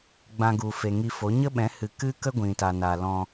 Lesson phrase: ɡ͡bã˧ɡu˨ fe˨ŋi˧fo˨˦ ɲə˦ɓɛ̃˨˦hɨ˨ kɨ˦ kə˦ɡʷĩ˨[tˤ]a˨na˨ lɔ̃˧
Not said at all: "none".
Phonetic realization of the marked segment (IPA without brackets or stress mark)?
t